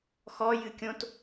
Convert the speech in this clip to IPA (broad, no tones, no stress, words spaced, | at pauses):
xɔjɨ kʲõt